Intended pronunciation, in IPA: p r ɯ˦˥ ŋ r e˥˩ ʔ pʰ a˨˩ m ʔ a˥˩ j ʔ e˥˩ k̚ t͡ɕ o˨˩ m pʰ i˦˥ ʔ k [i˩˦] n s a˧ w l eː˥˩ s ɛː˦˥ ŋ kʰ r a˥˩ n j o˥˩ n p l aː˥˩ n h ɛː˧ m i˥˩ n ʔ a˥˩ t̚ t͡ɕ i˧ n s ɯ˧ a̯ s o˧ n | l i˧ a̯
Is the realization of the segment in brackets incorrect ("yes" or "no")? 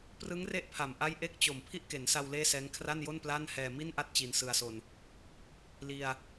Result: yes